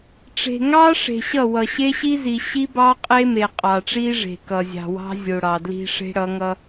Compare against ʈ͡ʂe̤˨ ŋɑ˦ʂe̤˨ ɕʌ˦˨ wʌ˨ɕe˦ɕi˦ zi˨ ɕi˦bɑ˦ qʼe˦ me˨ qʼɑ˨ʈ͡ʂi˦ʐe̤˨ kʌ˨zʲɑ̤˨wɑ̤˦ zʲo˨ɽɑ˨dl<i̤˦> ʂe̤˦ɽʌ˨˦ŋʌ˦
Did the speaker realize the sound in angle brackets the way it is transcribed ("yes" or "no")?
yes